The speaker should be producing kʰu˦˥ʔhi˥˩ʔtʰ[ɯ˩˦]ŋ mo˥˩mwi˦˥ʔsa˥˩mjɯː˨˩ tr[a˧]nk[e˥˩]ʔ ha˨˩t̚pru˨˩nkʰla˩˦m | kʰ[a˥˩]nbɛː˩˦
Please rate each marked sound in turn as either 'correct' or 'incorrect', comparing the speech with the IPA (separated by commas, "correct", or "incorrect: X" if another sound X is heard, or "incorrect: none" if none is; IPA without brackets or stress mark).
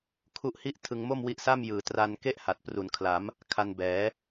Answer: incorrect: ɯ˧, correct, correct, incorrect: a˧